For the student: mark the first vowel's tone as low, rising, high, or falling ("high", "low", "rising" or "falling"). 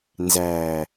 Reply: low